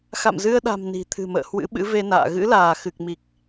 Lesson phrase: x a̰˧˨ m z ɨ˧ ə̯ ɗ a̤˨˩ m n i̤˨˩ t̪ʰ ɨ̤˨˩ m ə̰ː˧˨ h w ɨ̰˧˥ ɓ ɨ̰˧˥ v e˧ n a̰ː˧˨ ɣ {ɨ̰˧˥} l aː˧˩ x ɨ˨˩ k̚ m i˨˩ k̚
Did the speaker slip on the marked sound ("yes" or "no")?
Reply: no